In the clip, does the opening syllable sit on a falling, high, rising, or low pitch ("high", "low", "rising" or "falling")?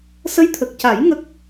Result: rising